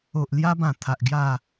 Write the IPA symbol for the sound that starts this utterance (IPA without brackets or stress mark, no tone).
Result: o